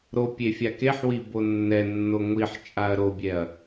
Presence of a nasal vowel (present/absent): absent